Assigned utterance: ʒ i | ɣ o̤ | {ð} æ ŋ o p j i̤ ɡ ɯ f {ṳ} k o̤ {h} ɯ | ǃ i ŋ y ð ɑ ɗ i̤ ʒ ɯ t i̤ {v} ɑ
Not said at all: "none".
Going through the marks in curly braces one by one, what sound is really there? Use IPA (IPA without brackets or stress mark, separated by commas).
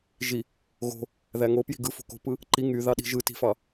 ð, o̤, p, f